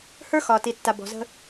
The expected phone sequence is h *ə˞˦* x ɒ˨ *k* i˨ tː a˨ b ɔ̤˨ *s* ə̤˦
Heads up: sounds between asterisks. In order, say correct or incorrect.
correct, incorrect: t, incorrect: z

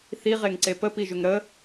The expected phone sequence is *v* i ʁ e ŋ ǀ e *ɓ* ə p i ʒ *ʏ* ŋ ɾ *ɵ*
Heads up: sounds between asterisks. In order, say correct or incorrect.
incorrect: θ, incorrect: p, correct, incorrect: ə

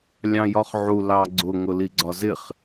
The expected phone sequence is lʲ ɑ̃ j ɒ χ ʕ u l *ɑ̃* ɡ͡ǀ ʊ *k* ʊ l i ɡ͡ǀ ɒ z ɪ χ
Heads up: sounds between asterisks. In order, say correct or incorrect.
incorrect: ɑ, incorrect: ŋ

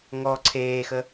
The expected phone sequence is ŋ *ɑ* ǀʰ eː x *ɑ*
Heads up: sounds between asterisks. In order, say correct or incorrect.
incorrect: ɔ, incorrect: ə

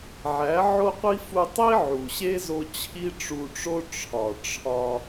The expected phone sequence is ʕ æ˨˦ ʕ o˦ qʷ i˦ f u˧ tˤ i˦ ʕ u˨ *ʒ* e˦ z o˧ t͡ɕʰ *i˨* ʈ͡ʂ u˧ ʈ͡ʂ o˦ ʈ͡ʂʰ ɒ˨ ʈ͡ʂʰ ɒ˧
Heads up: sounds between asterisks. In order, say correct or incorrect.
incorrect: ɕ, incorrect: i˦

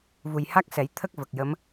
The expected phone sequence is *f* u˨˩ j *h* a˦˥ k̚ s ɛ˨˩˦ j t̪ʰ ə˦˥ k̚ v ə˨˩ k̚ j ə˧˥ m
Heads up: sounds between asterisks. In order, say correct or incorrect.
incorrect: v, correct

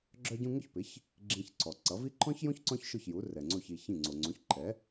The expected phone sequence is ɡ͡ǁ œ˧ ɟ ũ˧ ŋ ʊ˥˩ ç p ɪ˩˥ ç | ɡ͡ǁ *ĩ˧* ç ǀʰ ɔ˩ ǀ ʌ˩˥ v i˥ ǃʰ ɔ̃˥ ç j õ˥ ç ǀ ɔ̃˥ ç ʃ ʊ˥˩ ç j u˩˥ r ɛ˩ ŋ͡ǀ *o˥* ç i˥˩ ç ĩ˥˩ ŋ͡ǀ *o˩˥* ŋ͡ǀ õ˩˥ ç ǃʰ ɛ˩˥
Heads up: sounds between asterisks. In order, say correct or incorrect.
correct, incorrect: o˥˩, incorrect: o˩

